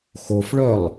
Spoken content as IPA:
xofɭœlˠ

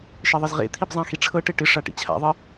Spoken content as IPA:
ʃeðˤɪzʁḛt̪ʰib zˤãxiʈ͡ʂʰɤʈe ʈɪʂa ʈḭt͡ɕʰa̰ðˤɨ

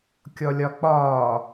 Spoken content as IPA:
kʲɔlʲɒk͡pɒː

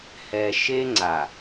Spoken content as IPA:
hɛ˨ʃe˦ ŋ͡ǀa˨

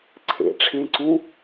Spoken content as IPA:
ǀʰḛ ʈ͡ʂʰẽǀũ

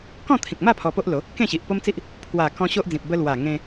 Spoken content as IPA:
kɔ̃˥˧t̪ʰĩ˨k̚ma˥˧ pʰɔ˧po˦ʔlo˨˦ | kẽ˥˧ɕi˨ʔ po˦mt͡si˦ʔ | pʰwa˨˩kɔ̃˧ ɕo˦ʔd͡zĩ˨p̚ bə˧lwa˨˩ ŋẽ˧

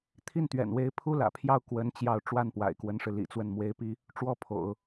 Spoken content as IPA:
t̪ʰi˥˩nt̪ɥɛ̰˨˩nwe˧˥ɪ̯ pʰu˥lä̰˨˩ pʰjɑ˥˩ʊ̯kwə˧˥n t͡ɕjɑ˥˧ʊ̯ ʈ͡ʂwa˥˩npwa̰˨˩ɪ̯kwə˧˥nʂɻ̩˧ lḭ˨˩ t͡swə˥˩nmwe˥ɪ̯pi˥ | ʈ͡ʂwɔ˥pʰo̰˨˩˦ʊ̯

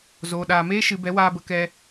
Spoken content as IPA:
zoː˨ ɗaː˨meː˦ ʃɨ˨bɛ˨˦ waː˧bə˧kɛ˧

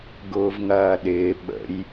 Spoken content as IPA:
ɡʊːvŋɐːɗɪː ɓə̰j

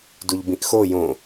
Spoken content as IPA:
duʎbĩʔxo jõ

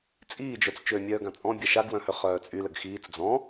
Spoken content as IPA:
t͡sʼiːd͡ʒœt͡s t͡ʃømʲœːɡã t͡sʼɔ̃bʲa ʃaɡwœ̃hø χœːt͡sʼy ləɡxiːt͡s d͡zɔ̃

